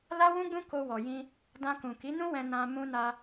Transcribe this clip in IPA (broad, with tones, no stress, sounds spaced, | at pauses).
l a˦ w ũ˦ ɡ͡b ũ˦ k o˧ w ɔ˨ j ĩ˧ | d ã˧ k ũ˨ k i˨˦ n ũ˦ w ɛ̃˧ n ã˧ m ũ˧ n a˧